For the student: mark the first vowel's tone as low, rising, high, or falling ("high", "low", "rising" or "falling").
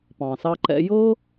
low